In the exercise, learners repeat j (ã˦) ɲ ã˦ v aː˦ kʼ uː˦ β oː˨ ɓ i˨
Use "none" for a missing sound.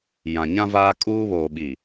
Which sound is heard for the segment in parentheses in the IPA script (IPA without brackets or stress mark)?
ã˨